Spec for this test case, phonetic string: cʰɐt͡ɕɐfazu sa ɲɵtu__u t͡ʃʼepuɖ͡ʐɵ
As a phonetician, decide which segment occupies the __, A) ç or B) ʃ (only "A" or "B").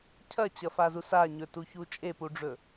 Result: A